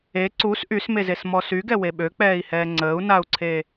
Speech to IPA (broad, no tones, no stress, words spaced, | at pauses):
e ǀus ʔysmezesmɔ syɡɛwe ɓøk͡pɛːi̯hɛː ŋ͡ǀəːu̯nau̯ǀʰeː